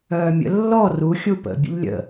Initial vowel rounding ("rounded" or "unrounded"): rounded